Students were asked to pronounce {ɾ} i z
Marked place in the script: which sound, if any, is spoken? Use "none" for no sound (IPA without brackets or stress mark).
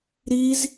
ɾ